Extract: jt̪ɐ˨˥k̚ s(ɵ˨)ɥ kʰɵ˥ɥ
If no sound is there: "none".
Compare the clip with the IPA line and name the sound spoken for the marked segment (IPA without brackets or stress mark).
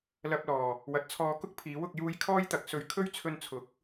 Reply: ɵ˨˧